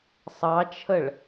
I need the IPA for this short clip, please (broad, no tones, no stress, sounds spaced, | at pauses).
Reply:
sˤ ɑ t͡ʃʰ ə ɭ